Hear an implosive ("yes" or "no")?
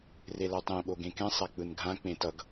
yes